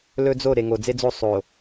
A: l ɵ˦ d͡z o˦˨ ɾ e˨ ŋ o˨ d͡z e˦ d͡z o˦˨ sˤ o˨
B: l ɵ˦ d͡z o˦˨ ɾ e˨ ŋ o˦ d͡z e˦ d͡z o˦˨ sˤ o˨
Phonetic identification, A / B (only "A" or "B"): A